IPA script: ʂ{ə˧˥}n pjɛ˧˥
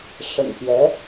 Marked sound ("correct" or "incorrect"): incorrect